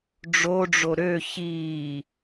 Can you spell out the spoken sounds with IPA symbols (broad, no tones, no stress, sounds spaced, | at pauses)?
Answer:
ɖ͡ʐ o ɖ͡ʐ o ɾ ø ç iː